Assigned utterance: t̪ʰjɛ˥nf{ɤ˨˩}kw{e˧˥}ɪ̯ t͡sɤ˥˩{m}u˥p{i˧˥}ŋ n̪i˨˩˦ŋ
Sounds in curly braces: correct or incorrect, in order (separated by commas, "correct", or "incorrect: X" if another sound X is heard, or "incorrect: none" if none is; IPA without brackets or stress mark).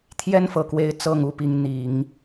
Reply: correct, correct, incorrect: ŋ, correct